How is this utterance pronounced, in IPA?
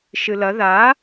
ʃ ɨ l ɐ ð a

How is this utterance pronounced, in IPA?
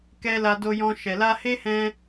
k ɛ˦ l a˧ d o˧ j ɔ̃˧ ʃ ɛ˨ l a˧ h e˦ h ɛ̃˧

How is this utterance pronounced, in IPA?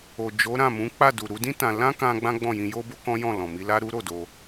o˨ d͡ʒ o˨˦ ɾ ã˦˨ m ũ˨˦ k͡p a˦˨ d u˨ ɾ u˧ d ĩ˦ t ã˧ l ã˦ k ã˧ ɡ͡b ã˦ ɡ͡b ɔ̃˦˨ j ĩ˧ j o˦ b o˦ k ɔ̃˦ j ɔ̃˦˨ l ɔ̃˨ m i˧ l a˦ ɾ u˦ ɾ o˦˨ d o˧

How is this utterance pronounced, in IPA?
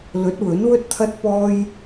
l ɵ˨˥ t̚ w ɵ˨˥ n w ɵ˥ t̚ t̪ʰ ɐ˥ t̚ p ɔː˥ j

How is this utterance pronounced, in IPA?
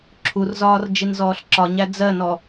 ǁʰ u r z ɒː r d͡ʒ i n z ɔː ɬ ǁ ɒ ɲ æ d͡z ɜ n ɔ

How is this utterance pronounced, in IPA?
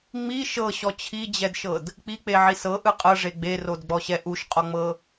ŋ͡m i ʃ ɤ ɕ ɔ t͡ɕʰ i d͡ʑ ɛ d ʃ ɤ d | k͡p i k͡p e ʕ i s ɤ ʔ ɯ qʼ ɤ ʐ e ɡ͡b e r o d ɡ͡b ɔ ɕ ɛ ʔ u ʃ qʼ ɔ ŋ͡m ɤ

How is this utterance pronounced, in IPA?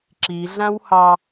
ǁ i ɮ ã w h ɑ

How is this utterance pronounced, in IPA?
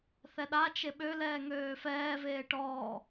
θ ɛ ɗ a t͡ʃ e ɓ ø l ɛː ŋ øː f ɛː v eː ʈ ɔː

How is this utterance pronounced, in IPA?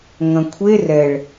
ŋ ɐ̃ kʷʰ e r ɛ ɭ

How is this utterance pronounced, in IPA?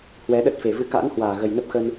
h w ɛ˨˦ ɗ ə˦˥ t̚ f e˨˩ v ɨ˧ k a̰ː˧˥ n h w aː˧˩ ɣ ə˨˩ j n ə˦˥ p̚ x ə˧ n

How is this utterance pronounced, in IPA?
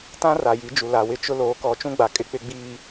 t ã˦ r a˨ j i˨˦ d͡ʒ u˨ l a˨ w ɪ˦ t͡ʃ ʊ˦ l oː˨˦ k ɔ˨˦ t͡ʃ ũ˦ ɡ͡b a˨ kʼ ɪ˦ k͡p ɪ˦ ɡ͡b iː˦

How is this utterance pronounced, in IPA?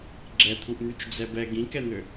ɡ͡ǁ ɛ t̪ʰ u ʔ n̪ y t͡ʃ d͡z ɛ b ɛ ɡ ĩ k ɛ n̪ ø

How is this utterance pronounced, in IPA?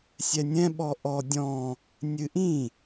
sʲ ɛ nʲ ɛ̃ ɓ ɔ ʔ ɔ dʲ ɔ̃ | nʲ ɨ ʔ ĩ

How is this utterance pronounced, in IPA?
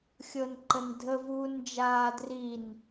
xʲ ɤ n ǃ ə n dʱ ə v uː n d͡ʒ aː d r i n

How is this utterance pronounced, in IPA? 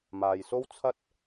m aː˨ j s o˥ w t͡sʰ ɐ˥ t̚

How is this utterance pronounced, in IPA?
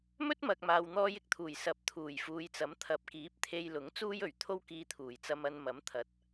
m ɵ˥ t̚ m ɐ˨ k̚ m aː˨ w n̪ ɔː˧ j ɪ˧ k̚ t̪ʰ uː˨˩ j s ɐ˨˥ p̚ t̪ʰ uː˨˩ j f uː˨ j t͡s ɐ˨˥ m t̪ʰ ɐ˨ p̚ k iː˨˥ p̚ t̪ʰ e˧ j l ʊ˨˥ ŋ t͡s uː˥ j ɵ˨˩ ɥ t̪ʰ o˥ w k iː˧ t̪ʰ uː˨˩ j t͡s ɐ˧ m ɐ˧ n m ɐ˨˥ m t̪ʰ ɐ˨ t̚

